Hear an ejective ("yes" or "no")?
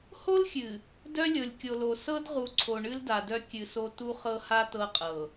yes